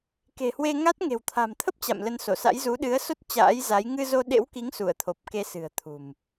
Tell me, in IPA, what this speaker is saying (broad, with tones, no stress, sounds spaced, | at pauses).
k e̤˨˩ h w e˧ ŋ a˦˥ t̚ ŋ e̤˨˩ w t̪ʰ a̤˨˩ m t̪ʰ ə˦˥ p̚ t͡ɕ a̰˧˨ m l ə˧ n s o˧˩ s a̰˧˥ j z u˨˦ ɗ ɨ˨˦ ə̯ s o˦˥ t̚ t͡ɕ a̰ː˧˥ j z a˨˦ j ŋ ɨ˧ z o˧ ɗ ḛ˧˥ w k i˨˦ ŋ s u˧˩ ə̯ t̪ʰ o˨˩ p̚ k e˧ s ɨ̤˨˩ ə̯ t̪ʰ ṳ˨˩ m